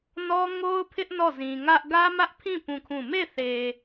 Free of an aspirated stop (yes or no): no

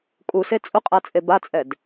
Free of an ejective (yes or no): no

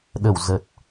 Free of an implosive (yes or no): no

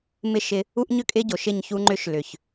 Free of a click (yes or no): no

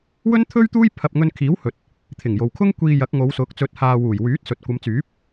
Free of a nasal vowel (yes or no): yes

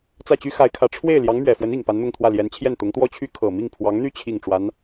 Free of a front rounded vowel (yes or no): no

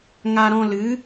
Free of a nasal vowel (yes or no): no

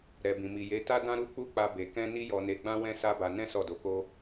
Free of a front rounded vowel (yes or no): yes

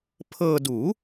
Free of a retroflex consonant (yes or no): yes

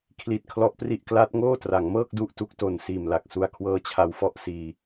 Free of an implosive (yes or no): yes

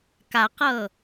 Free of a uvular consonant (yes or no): no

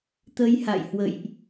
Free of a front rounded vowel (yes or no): yes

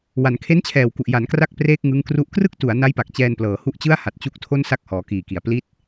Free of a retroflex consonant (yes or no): yes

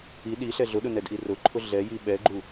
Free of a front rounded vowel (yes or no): yes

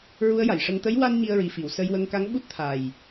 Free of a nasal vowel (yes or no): yes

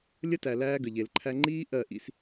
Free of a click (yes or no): no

